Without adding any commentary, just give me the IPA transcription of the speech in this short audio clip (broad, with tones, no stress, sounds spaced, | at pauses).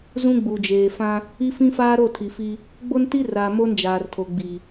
z ũ˦ ɡ͡b u˨ d͡ʒ eː˨ f ã˦ | i˦ f ĩ˦ f aː˦ ɾ o˦˨ tʰ i˨ f i˦ | ɡ͡b o˦ n t i˦ r aː˨ m o˦ n d͡ʒ aː˨ r tʰ o˨ ɡ͡b i˨